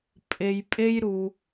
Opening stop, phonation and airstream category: ejective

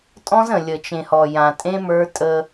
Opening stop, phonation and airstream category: ejective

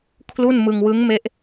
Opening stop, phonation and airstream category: aspirated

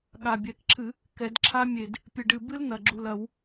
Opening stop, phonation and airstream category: implosive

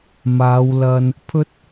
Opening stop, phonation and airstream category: aspirated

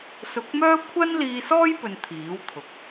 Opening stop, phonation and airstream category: plain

